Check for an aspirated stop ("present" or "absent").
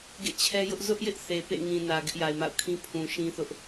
present